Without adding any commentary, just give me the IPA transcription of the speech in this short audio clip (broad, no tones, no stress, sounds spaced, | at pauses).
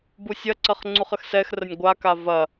b u sʲ ɐ ǀ ɐ χ ŋ͡ǀ u χ ə x s ɛ x r ə nʲ ɡʷ a k a v ɐ